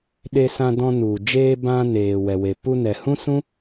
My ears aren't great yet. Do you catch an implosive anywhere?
yes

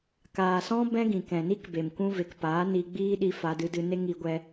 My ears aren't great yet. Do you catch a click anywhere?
no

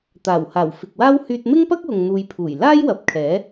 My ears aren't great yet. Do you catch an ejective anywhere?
no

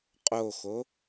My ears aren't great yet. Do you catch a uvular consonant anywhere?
yes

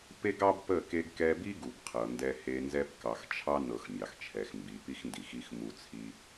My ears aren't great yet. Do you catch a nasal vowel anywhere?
no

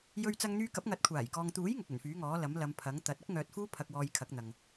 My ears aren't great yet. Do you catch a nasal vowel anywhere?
no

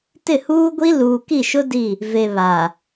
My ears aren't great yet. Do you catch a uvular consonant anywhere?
no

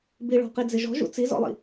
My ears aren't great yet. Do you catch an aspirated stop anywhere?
no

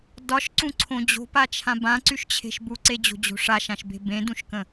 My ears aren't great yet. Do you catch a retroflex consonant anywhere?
yes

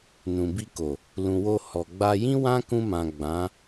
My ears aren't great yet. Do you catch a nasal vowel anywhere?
yes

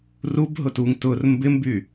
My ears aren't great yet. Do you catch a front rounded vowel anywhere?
yes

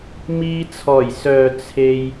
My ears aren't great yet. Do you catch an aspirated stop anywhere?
yes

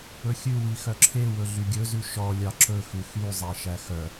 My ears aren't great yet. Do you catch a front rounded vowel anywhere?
yes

